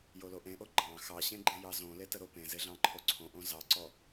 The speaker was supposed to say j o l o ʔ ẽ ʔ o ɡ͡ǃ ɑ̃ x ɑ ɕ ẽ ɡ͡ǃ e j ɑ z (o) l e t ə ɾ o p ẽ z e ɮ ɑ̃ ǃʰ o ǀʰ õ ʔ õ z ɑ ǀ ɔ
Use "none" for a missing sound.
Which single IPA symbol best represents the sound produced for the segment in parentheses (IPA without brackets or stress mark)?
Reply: õ